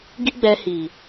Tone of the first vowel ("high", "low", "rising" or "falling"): high